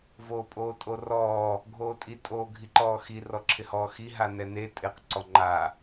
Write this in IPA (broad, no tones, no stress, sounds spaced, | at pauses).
v oː pʼ oː tʼ o r ɔː | ɡʱ oː tʼ i tʼ oː ɡʱ i ǃ ɔː x i r ɔ ǁʰ ɪ h ɔː x i ɦ a n ɛ n e tʼ ɪ q ǀ ɔ ŋ͡ǃ a